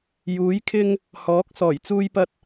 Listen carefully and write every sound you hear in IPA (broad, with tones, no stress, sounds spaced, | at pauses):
j uː˨˥ j kʰ ɪ˥ ŋ | h ɔː˨˥ k̚ s ɔː˨˩ j t͡s uː˧ j p ɐ˧ t̚